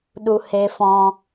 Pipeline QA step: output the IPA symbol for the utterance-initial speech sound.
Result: ɗ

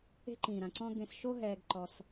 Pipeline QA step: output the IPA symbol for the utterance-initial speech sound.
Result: e̤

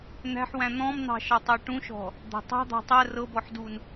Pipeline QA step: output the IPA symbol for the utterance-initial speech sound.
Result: n̪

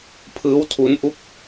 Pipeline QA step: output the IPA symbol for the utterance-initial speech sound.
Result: pʰ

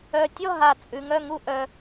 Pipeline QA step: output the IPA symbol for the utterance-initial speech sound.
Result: œ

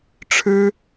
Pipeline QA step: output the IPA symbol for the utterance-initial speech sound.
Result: ʈ͡ʂʰ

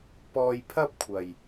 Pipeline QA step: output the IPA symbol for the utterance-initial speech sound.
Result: p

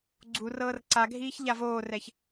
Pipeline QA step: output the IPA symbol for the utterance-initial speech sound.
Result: ɡ͡ǀ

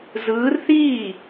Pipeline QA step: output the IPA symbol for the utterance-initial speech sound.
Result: z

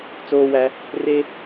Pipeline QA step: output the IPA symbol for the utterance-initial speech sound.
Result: t͡s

